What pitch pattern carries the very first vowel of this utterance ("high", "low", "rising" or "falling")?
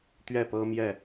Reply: falling